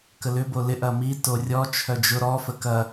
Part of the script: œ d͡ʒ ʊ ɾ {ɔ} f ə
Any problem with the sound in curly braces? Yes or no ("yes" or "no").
no